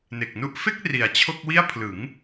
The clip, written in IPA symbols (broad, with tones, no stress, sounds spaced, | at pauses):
n e˨˩ k̚ n u˥˩ ʔ f e˥˩ k̚ r i˨˩ a̯ t͡ɕʰ o˥˩ k̚ w i˥˩ a̯ pʰ l ɯ˩˦ ŋ